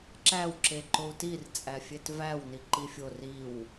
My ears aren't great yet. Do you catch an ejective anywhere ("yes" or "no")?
yes